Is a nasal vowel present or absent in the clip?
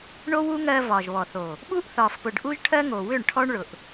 absent